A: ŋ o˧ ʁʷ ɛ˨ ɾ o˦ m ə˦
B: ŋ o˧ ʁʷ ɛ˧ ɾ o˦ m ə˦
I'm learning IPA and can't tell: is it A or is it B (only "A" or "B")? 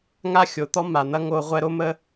B